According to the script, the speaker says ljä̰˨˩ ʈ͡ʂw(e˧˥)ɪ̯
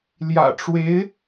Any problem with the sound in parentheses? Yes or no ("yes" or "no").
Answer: no